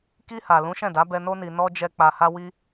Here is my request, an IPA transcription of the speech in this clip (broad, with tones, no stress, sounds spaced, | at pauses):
k i˧ h a˨ l ũ˨˦ ʃ ɛ̃˦˨ d a˨˦ b ɛ˧ n o˧ n i˨ n ɔ˧ d͡ʒ ɛ˧ k͡p a˧ h a˦ w i˦